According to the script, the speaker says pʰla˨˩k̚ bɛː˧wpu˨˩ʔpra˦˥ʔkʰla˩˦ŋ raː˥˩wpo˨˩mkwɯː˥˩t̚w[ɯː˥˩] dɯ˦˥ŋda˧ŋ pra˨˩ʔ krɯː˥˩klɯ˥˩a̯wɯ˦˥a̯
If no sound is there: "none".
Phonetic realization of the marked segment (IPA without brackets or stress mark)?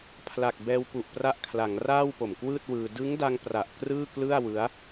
ɯː˧